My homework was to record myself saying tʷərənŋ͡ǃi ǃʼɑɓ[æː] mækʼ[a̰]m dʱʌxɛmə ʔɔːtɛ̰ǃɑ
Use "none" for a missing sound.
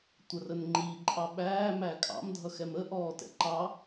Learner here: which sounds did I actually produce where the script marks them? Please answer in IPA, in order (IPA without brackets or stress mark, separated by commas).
æː, ɑ̰